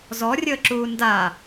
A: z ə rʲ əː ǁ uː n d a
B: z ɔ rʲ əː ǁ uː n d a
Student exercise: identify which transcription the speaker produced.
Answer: B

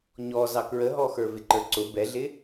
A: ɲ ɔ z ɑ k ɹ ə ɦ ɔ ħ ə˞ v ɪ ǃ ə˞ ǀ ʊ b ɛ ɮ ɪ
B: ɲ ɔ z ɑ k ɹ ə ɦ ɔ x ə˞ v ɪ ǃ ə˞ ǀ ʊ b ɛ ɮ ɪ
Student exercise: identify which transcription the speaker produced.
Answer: B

